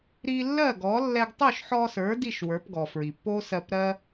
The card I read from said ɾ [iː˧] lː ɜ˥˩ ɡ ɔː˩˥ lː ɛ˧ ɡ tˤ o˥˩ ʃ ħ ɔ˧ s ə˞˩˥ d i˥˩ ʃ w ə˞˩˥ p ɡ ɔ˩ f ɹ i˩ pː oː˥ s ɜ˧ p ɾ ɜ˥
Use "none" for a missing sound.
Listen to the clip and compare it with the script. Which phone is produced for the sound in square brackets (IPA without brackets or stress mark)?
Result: iː˧